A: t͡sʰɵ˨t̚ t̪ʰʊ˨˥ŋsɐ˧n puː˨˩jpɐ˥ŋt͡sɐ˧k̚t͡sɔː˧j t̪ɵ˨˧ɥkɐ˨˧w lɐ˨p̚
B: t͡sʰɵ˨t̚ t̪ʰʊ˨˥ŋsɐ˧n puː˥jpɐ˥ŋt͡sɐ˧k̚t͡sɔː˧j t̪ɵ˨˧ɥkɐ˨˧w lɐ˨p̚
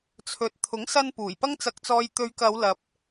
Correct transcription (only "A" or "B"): A